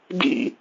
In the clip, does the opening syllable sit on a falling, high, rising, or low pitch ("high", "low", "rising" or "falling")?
falling